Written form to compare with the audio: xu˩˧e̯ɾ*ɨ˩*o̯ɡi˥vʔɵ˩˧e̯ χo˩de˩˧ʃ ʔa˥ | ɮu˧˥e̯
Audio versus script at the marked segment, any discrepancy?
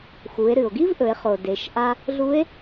no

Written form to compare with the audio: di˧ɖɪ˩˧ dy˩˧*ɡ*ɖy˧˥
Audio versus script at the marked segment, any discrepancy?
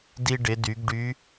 no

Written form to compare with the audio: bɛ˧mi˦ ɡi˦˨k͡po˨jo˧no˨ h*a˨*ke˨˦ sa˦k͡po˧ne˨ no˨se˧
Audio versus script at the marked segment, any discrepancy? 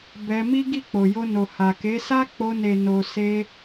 no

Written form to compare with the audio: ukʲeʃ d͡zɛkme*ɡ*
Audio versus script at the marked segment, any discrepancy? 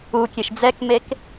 yes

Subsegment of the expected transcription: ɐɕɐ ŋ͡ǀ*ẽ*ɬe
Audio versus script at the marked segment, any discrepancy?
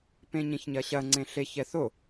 no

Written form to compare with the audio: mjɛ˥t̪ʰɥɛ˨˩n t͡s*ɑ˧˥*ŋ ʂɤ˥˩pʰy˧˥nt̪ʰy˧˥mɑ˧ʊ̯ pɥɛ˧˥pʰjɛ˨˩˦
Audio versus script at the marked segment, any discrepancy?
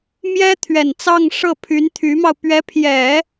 yes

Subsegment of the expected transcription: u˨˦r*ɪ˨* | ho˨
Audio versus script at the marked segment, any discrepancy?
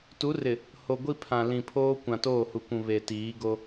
no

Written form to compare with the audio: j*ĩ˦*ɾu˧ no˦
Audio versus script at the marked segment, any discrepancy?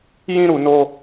no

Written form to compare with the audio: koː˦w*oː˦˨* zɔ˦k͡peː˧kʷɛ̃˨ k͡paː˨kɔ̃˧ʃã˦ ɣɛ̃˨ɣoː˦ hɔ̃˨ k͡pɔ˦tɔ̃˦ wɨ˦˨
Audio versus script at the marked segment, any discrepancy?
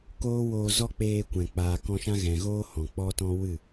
yes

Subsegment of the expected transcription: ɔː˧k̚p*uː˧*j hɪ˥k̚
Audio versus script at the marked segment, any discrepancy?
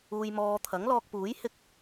yes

